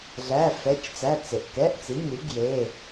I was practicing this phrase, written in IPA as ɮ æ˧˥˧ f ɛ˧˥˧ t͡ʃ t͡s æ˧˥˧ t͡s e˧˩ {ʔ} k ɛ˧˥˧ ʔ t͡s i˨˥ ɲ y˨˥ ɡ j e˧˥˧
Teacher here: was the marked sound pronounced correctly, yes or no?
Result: yes